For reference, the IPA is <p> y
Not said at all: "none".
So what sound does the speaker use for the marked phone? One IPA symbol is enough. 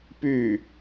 p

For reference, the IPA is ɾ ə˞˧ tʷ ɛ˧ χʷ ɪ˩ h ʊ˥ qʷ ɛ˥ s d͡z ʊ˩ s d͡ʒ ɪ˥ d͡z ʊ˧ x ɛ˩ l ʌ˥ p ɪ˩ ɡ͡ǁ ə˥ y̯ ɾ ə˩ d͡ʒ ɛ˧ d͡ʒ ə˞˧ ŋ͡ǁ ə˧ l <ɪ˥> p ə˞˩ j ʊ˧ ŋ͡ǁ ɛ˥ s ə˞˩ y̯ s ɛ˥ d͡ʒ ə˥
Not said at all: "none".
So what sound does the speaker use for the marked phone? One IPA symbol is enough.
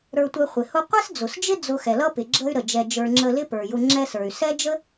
ɪ˥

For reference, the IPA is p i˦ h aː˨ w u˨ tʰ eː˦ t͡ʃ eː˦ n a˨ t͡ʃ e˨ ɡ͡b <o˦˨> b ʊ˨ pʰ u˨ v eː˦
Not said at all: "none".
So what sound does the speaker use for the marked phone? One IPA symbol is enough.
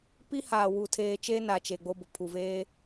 o˦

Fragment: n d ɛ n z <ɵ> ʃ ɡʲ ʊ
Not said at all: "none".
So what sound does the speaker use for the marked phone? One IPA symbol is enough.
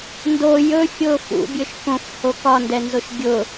o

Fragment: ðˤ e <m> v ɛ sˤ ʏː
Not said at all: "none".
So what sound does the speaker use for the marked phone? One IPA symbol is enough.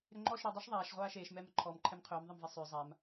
m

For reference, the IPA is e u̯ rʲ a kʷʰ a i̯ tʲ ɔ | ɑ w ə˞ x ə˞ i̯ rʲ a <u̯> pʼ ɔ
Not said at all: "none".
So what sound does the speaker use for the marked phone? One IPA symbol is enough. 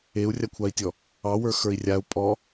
u̯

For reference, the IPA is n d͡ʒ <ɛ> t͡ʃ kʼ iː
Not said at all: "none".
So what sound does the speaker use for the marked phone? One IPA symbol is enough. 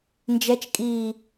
ɛ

